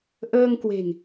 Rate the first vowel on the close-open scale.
mid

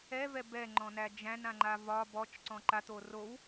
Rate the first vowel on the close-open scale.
mid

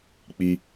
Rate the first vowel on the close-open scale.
close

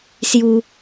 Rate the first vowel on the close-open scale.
close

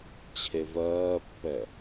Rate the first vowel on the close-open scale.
mid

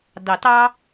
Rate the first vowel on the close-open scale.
open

